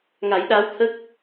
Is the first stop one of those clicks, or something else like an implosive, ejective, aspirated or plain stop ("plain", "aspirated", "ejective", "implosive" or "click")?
implosive